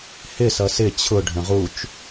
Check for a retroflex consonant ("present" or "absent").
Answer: present